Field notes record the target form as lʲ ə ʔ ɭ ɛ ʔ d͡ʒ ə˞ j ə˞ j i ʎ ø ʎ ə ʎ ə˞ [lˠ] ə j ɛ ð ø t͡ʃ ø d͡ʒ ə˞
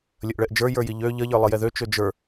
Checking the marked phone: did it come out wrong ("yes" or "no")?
no